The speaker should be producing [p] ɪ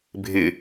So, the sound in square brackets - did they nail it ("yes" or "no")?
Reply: no